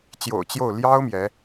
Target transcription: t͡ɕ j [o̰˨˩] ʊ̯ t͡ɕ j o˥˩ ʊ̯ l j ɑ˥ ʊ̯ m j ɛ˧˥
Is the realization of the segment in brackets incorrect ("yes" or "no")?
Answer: no